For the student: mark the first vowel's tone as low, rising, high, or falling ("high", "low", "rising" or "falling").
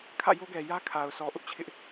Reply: falling